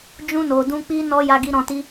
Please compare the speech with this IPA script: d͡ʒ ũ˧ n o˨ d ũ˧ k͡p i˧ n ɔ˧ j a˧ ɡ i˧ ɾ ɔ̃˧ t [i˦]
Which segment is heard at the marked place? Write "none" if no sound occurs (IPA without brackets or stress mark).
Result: i˦